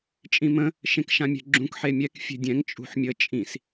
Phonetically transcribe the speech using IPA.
t͡ʃʼĩmə̃ | ʃẽkʃãmʲɛ̤ɡ͡ǁũk ħemʲɛk fʲe̤dʲɛ̃ŋ t͡ʃʼṳħmʲə t͡ʃʼĩs

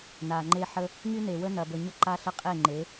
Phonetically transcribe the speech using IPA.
na˨ŋ͡ǃe˦ħə˦ | ŋy˦ne˨wə˦ nɐ˨bə˨ɲə˦ ǃa˦ɬə˦qʼe˦˨ ŋ͡ǃe˨˦

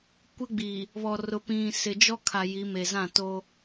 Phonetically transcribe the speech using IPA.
kʷɪ˦ɡ͡bi˨ | βɔ˨rʊ˨ pĩ˨ sɪ˨d͡ʒɔ˦kʰa˨ ji˨˦ me˨zã˦˨to˦

